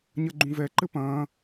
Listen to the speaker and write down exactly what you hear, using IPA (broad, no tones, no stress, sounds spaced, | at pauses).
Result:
ɲ ɐ ɡ͡ǃ ũ v ɛ ǃ ɘ p ɐ̃ː